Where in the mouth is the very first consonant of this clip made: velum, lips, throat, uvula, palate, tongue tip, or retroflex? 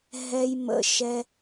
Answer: throat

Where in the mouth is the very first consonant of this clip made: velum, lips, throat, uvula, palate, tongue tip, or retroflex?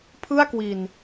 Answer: lips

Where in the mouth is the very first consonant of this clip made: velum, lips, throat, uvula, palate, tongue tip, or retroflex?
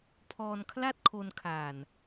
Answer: lips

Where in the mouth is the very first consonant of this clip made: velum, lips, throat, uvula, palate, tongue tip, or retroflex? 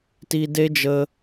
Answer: tongue tip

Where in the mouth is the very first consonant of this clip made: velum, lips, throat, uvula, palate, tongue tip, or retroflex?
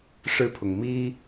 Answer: retroflex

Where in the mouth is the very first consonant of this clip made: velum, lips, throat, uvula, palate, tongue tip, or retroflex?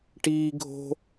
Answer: retroflex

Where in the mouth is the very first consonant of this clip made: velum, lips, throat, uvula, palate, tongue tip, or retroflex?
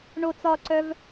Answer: retroflex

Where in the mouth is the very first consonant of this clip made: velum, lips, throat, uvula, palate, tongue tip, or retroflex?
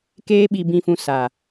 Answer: velum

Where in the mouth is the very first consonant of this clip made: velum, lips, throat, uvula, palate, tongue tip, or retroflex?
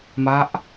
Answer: lips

